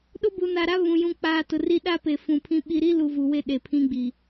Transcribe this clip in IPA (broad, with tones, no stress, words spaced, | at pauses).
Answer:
ɗʊ˦ bu˨na˨ɾa˦ βũ˨ jũ˨k͡paː˨ tʊ˨ri˦ ɗa˦ pe˨fũ˨ pʰĩ˦ɓi˦ ɾi˦lu˨ vuː˨we˦˨ ɗe˨pʰĩ˦ɡ͡bi˨